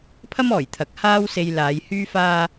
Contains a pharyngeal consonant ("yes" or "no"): no